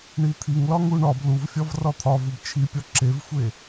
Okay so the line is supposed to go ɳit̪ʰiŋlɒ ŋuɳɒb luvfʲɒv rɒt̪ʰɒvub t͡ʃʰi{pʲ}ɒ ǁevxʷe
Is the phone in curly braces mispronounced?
no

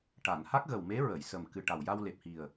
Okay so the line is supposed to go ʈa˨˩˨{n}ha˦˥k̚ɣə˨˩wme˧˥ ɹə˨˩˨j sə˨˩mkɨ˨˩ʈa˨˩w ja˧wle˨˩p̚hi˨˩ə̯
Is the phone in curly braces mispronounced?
no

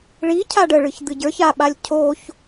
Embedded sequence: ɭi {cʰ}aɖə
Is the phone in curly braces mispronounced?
no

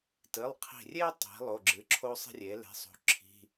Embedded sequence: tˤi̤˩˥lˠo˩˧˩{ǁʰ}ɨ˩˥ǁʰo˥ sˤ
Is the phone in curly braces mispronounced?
yes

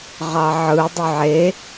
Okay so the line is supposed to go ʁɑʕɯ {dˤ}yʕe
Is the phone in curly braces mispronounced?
no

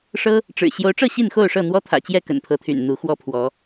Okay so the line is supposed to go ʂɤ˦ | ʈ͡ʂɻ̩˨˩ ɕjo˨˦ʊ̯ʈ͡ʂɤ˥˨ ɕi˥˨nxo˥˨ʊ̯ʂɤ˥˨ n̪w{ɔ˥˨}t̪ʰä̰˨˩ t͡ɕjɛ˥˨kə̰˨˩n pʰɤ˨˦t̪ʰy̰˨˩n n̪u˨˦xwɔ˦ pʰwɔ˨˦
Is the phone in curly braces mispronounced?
yes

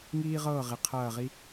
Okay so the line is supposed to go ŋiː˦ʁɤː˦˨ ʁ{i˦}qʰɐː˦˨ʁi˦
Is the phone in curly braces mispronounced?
yes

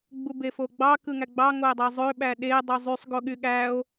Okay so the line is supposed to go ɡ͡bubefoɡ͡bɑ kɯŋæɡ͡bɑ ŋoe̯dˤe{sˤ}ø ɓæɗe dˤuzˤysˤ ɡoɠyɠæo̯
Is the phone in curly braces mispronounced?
yes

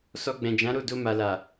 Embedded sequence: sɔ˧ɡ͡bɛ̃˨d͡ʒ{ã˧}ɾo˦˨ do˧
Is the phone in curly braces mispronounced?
yes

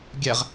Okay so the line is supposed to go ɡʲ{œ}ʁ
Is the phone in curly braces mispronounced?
yes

